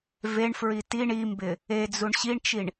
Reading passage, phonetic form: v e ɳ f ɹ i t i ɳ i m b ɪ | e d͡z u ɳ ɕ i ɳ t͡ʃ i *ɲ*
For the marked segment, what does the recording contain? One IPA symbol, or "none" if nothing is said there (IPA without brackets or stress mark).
ɳ